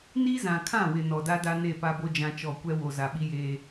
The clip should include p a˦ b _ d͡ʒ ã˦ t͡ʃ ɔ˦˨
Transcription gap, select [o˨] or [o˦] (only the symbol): o˦